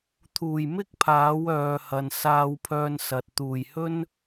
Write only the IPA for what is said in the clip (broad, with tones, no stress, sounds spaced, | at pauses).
t̪ʰ uː˨˩ j m ɪ˥ k̚ pʰ aː˨˥ w œː˨ h ɐ˨ n s aː˧ w pʰ œː˧ n s ɐ˨ t̚ t̪ uː˨˩ j h ɵ˥ n